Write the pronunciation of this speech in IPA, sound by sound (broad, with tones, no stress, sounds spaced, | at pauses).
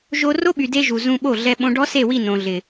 ʒ o˧ r o˦ ɓ y˨ d e˧ ʒ u˨ z ũ˧ ɓ o˦˨ ɮ ɛ˧ ɓ õ˧ ɖ ɔ˦ s e˦˨ w i˦˨ n õ˨ ɮ ɪ˨